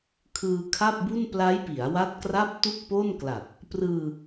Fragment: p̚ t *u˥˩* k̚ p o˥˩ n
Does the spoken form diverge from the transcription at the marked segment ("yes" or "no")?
no